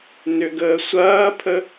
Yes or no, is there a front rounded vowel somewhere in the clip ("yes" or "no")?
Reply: yes